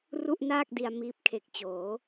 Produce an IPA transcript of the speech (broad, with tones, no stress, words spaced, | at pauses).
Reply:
ru˥˩ʔnaː˥˩k̚di˧a̯ miː˦˥p̚kʰe˨˩k̚t͡ɕoː˩˦